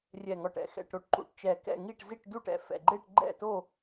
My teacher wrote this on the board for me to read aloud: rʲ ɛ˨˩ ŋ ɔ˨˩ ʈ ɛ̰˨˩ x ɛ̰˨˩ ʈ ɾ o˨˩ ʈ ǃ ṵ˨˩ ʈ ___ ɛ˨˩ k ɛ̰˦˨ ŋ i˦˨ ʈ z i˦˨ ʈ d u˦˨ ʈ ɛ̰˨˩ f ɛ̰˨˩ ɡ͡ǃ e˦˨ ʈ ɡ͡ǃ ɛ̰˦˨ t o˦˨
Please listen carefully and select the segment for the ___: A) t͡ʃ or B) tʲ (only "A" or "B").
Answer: A